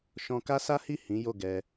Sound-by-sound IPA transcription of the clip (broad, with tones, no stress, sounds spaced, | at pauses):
ʃ ɔ̃˧ k a˦ s a˦ h i˦˨ h ĩ˨˦ j o˦˨ ɡ ɛ˧